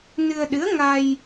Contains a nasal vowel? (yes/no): no